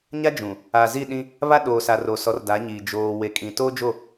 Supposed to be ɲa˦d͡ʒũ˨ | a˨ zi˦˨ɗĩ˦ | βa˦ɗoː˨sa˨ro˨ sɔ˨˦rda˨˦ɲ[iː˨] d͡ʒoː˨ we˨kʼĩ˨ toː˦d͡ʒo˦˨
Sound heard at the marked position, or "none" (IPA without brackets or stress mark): iː˨